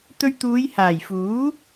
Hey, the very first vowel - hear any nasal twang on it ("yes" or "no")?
no